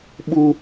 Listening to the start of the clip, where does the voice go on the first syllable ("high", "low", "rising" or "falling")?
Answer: high